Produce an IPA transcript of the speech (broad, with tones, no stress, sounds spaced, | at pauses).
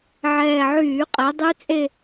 ʕ ɛː˨˩ ʕ yː˧˩˧ qʼ ɛ˩˧ dˤ y˦˥ t͡sʼ e˥˧